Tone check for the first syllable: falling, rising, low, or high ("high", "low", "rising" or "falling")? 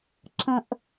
high